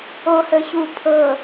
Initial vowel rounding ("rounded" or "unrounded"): rounded